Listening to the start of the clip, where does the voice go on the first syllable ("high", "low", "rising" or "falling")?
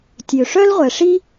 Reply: low